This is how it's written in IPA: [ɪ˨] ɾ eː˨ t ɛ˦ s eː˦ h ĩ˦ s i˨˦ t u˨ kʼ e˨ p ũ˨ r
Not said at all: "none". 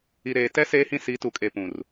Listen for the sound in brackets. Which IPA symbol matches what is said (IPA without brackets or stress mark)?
i˨